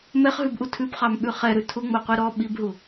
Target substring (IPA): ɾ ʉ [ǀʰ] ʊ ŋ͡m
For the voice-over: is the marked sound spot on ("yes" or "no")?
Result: no